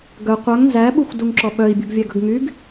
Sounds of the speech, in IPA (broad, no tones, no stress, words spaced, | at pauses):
ɡœ qʷœŋ nzæɓuxʷ duŋǁɔɓœi̯bʲuɡ vʲæɡɵɡŋyɡ